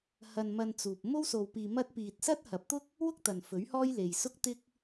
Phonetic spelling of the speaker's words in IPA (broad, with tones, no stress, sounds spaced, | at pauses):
h ɐ˧ n m ɐ˧ n t͡s uː˨ p̚ m o˥ w s o˧ w p iː˧ m ɐ˥ t̚ p iː˧ t̚ s ɐ˥ t̚ h ɐ˨˥ p̚ t̪ ʊ˥ k̚ | w ʊ˥ k̚ t̪ ɐ˨ n f ɵ˨˥ ɥ h ɔː˥ j l e˨ j s ʊ˥ k̚ t̪ ɪ˥ k̚